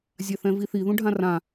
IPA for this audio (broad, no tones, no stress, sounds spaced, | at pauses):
zʲ a θ ɛ̃ v i θ i ð ũ ɖʱ ã r ã